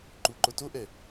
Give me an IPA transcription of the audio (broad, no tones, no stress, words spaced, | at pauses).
ǃuǃo toʔɛ